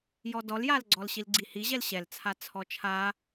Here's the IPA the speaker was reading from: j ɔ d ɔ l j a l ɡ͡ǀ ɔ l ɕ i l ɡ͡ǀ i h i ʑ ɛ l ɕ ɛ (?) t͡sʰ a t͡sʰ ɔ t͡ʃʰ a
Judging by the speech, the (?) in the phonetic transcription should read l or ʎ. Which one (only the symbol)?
l